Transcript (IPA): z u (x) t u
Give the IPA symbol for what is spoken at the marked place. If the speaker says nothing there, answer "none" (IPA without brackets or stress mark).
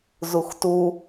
x